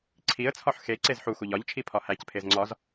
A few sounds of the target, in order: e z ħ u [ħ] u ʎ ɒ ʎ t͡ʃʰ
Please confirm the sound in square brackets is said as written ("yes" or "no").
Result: no